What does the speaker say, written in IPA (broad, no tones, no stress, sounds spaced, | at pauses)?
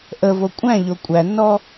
ʔ ə v o kʷʼ æ̃ ʎ o kʷʼ æ nː ɔ